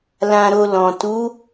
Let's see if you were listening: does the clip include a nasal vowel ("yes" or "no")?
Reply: yes